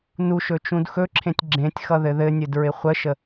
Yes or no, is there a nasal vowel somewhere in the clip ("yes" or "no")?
yes